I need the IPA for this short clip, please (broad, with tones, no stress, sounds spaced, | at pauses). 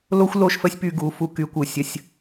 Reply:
l o˦ xʷ l o˦˨ ʃ f ə˦ sʲ p y˧ ɡ u˨˦ f u˧ k y˨˦ kʷ ɯ˨ sʲ ə˦ sʲ